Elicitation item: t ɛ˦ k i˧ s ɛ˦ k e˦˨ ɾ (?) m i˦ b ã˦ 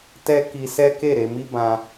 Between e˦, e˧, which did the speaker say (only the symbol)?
e˧